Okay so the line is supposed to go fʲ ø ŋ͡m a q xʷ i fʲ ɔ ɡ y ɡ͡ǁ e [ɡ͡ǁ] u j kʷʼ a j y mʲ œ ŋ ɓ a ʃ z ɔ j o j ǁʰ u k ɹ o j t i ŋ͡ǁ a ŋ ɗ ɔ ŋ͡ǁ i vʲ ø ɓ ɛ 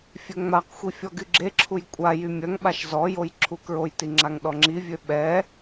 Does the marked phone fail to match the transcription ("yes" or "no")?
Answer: yes